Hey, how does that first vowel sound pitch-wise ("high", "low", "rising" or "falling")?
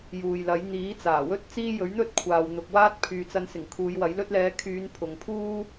low